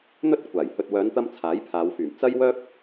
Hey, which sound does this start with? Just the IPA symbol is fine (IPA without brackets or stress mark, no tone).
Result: n̪